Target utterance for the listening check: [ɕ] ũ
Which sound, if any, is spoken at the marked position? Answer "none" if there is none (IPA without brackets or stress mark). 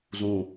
z